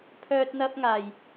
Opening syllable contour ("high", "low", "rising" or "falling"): high